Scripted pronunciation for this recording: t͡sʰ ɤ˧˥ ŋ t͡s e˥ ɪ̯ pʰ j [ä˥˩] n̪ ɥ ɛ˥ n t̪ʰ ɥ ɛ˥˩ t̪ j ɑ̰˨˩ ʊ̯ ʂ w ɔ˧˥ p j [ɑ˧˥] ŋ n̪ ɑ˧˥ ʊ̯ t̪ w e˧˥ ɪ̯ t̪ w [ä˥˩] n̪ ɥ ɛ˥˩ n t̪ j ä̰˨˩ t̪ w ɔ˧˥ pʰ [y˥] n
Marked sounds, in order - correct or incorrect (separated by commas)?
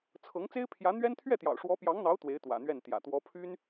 incorrect, correct, incorrect, correct